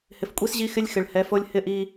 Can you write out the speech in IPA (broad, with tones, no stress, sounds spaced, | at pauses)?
h ɪ˨ f kʷʼ i˦ s ʑ i˦ x ɪ˦ lʲ x ɪ˨ ɭ h ɛ˨˦ f o˦ lʲ h ɪ˦ ʔ i˦